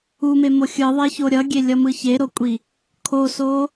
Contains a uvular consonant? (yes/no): no